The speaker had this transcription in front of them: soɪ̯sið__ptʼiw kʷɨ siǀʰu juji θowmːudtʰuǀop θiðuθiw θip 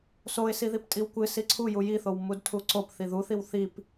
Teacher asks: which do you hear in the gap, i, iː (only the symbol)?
i